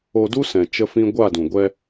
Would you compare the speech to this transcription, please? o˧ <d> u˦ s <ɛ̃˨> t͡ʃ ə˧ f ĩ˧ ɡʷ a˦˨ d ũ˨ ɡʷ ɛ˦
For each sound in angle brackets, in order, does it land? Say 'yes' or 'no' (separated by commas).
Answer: yes, yes